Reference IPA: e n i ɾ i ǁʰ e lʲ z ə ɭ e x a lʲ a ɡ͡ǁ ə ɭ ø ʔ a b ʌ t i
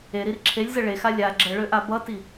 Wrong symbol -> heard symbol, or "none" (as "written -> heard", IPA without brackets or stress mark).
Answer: n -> ɾ